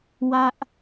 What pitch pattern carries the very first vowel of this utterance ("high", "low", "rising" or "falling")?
high